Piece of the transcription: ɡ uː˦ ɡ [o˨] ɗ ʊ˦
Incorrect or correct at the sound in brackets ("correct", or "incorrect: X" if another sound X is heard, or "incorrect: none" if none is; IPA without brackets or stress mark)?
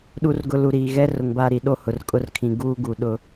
incorrect: u˨